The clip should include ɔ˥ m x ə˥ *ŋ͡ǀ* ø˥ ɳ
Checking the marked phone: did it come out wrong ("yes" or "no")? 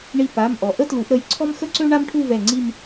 yes